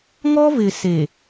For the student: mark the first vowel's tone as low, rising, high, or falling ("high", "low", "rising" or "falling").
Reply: high